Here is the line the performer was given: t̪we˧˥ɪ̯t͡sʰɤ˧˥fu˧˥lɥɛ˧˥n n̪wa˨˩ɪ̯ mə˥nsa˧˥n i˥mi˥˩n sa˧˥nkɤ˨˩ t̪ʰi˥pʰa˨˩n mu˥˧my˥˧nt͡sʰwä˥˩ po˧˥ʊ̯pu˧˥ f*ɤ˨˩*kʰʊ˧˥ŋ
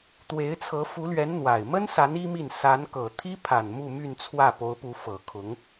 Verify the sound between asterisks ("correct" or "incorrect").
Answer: correct